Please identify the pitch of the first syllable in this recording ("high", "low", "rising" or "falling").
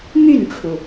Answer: falling